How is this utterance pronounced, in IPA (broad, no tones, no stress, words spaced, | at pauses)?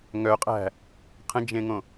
ŋœqʼæ̤ | qʰə̃d͡ʒẽŋõ